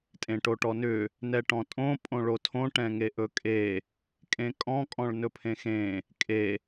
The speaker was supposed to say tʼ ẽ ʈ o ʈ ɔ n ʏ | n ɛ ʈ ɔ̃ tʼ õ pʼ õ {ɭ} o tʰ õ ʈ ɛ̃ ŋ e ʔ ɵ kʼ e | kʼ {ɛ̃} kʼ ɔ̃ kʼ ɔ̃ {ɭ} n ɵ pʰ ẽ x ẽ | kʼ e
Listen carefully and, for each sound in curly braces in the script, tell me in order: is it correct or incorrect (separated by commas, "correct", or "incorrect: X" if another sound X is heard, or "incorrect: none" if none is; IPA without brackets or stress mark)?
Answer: correct, incorrect: ẽ, correct